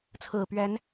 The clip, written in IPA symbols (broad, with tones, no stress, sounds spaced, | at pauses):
t͡sʰ ɹ̩˨˩ p ɥ ɛ˨˦ n